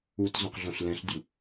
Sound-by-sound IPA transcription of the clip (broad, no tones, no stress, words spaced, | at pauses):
utzõqɮõɬ lɛ̃ɬdʲu